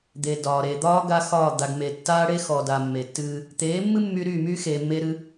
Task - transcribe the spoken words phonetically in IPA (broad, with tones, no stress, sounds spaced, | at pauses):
d̪ e˨ d ɒː˨ ɾ e˨ d̪ ɒː˦ ɡ a˦ x ɒː˦˨ d̪ a˨ ɡ m e˨ tː aː˦ ɽ e˦ x ɔ˨ d a˨ mː e˨ tː ɨː˦ | t̪ eː˨˦ mː ɨ˦ mː y˦ ɾ y˦˨ m y˦ x e˨ mː e˦ ɾ ɨ˦